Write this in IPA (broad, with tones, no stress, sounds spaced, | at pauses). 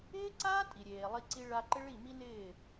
ɪː˦ ǀ aː˦ tʼ i˨ ɾʲ eː˨ lˠ i˧ ǀ i˧ ɭ a˧ ǃ ɪ˦ ɭ i˦˨ m i˦ n ɪː˦˨